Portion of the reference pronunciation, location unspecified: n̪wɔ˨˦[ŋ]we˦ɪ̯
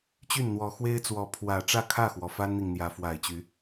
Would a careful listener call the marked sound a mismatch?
yes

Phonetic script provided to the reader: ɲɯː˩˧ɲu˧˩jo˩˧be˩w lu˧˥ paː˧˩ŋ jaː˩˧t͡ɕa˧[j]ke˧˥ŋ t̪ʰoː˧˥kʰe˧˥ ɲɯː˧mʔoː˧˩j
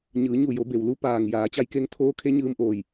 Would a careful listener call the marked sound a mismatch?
no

